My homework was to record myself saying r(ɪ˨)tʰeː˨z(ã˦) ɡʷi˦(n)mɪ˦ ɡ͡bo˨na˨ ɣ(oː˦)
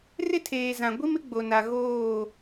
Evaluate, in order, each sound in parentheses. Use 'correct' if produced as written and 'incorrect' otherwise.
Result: incorrect, incorrect, incorrect, incorrect

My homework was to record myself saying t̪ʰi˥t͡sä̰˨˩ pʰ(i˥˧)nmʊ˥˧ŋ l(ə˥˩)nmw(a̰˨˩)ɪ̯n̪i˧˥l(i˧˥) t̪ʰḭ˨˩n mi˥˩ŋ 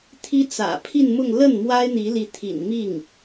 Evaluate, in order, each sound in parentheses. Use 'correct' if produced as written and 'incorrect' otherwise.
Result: correct, correct, incorrect, correct

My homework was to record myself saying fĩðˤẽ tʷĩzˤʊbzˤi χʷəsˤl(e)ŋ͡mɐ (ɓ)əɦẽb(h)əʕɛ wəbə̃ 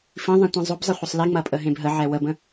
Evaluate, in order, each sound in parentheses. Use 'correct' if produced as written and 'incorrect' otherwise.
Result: incorrect, incorrect, incorrect

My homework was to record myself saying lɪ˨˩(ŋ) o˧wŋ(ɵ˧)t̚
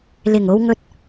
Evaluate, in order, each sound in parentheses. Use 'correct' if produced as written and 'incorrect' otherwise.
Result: correct, correct

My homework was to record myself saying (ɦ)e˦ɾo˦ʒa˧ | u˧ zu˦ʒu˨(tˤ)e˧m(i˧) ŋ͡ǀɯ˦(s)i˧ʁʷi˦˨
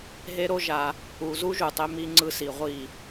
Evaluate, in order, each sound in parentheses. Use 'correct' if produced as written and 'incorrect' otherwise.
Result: correct, correct, correct, correct

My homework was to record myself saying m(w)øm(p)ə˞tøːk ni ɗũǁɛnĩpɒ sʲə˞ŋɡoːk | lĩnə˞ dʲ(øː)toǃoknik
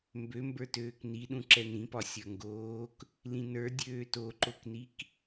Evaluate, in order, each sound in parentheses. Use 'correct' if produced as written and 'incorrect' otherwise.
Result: incorrect, incorrect, correct

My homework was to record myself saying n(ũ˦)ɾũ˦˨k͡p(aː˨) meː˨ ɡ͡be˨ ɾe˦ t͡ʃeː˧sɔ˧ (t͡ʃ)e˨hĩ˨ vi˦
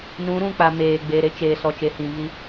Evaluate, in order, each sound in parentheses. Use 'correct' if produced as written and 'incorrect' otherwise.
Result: incorrect, incorrect, correct

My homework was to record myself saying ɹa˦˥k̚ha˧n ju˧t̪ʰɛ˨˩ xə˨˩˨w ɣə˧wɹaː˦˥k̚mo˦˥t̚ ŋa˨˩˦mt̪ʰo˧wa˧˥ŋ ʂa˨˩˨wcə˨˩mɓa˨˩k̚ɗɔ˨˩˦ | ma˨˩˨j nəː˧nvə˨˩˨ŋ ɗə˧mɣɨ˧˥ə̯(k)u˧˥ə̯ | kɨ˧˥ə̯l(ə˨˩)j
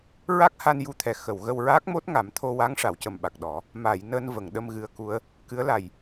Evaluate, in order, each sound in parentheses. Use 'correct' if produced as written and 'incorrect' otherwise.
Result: correct, incorrect

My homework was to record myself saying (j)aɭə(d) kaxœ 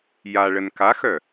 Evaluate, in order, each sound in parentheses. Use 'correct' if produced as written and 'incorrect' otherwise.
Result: correct, incorrect

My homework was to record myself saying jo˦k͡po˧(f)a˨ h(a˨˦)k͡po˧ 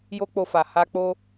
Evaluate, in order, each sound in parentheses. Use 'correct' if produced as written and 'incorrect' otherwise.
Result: correct, incorrect

